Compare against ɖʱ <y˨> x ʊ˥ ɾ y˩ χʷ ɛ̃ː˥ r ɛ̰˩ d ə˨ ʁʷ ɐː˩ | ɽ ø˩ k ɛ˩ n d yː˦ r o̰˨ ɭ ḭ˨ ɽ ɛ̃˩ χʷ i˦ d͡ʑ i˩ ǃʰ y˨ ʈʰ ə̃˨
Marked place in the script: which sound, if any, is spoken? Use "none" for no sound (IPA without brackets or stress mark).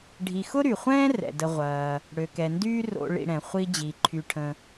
i˨